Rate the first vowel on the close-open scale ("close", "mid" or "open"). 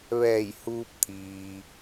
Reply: mid